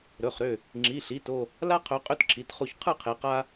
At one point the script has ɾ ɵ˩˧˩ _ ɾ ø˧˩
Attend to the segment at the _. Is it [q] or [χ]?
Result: χ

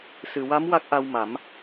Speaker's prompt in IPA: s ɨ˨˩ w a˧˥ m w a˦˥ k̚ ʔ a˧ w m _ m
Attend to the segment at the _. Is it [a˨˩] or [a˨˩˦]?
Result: a˨˩˦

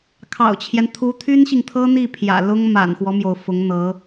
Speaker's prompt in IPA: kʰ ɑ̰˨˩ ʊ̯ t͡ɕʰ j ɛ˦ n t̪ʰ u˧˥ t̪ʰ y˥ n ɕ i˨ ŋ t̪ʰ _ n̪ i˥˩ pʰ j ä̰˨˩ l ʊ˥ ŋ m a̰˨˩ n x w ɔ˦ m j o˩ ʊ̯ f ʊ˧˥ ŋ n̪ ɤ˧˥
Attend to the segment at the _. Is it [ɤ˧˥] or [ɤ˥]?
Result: ɤ˥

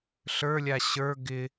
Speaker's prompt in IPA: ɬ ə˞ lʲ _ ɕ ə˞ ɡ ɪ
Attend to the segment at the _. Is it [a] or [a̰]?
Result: a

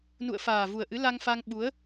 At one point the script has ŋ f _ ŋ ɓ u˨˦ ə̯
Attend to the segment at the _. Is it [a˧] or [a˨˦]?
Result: a˧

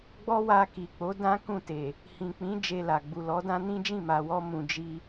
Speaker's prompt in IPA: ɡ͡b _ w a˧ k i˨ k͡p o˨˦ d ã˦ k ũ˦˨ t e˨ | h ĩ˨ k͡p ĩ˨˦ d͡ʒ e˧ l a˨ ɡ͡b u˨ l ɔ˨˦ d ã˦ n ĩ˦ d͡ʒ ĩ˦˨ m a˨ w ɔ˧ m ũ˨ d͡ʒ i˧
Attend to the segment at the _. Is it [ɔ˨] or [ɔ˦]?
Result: ɔ˦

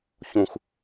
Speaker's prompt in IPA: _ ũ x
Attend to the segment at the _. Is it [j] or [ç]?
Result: ç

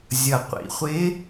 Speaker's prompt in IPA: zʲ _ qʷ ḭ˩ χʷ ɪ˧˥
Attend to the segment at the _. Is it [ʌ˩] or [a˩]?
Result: ʌ˩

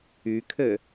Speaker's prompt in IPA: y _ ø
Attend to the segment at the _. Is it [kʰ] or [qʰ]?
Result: kʰ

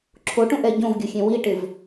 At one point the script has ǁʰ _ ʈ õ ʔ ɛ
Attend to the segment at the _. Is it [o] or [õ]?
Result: o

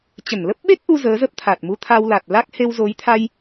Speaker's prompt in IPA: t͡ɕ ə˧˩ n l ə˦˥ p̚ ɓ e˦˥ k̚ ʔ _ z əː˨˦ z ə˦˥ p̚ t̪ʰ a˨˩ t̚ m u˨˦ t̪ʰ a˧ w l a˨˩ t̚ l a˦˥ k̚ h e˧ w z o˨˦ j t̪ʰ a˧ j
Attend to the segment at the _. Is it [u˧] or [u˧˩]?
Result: u˧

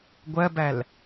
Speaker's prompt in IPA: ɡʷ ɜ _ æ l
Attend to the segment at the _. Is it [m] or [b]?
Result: b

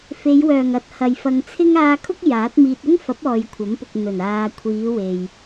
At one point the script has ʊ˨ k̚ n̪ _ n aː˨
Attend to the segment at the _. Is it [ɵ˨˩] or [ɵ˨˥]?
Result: ɵ˨˩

